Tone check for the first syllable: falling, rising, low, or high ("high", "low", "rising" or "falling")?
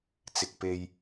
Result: low